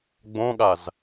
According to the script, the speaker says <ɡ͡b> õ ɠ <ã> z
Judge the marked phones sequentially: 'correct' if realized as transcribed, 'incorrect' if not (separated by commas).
correct, incorrect